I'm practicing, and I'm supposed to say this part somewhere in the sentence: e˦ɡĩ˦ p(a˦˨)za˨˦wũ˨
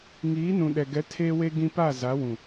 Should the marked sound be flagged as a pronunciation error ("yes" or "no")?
no